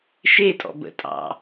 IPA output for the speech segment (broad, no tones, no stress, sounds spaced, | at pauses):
ʃ e tʼ ɔ̰ b ə̰ tʼ ɑ̰